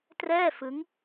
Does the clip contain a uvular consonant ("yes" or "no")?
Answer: no